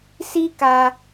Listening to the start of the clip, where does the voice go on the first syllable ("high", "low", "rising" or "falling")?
high